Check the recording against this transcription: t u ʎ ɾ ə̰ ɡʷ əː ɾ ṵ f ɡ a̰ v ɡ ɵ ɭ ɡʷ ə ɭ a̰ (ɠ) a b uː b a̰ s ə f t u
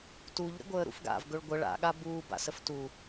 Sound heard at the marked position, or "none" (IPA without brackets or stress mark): ɠ